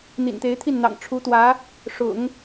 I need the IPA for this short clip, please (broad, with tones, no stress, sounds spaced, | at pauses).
n̪ ḭ˨˩ n t̪ e˧˥ ɪ̯ t̪ʰ i˥˩ n n̪ ɑ̰˨˩ ŋ ʈ͡ʂʰ u˧˥ t̪ w ä˧˥ | ʂ ʊ̰˨˩˦ ŋ